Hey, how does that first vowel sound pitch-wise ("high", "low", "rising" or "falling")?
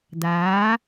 rising